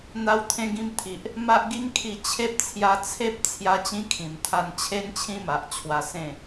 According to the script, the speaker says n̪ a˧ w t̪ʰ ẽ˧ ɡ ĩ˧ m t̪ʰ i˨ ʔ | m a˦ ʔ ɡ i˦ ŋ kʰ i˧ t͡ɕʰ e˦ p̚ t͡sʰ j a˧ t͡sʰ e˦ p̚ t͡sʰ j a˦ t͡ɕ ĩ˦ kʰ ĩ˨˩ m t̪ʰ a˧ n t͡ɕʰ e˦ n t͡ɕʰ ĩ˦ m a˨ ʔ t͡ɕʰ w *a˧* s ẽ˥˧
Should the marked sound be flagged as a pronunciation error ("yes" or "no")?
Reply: no